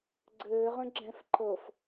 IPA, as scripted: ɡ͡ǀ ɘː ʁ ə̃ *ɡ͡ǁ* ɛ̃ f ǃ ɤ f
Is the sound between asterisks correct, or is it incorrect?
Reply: correct